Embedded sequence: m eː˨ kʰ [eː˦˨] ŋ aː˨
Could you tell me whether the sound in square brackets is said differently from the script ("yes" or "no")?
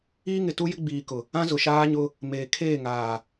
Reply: no